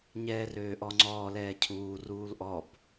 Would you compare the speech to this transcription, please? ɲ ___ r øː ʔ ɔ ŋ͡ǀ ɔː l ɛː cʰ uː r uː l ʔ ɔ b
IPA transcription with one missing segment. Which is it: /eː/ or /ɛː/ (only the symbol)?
ɛː